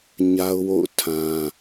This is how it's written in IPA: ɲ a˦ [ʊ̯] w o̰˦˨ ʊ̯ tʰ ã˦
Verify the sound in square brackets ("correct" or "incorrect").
correct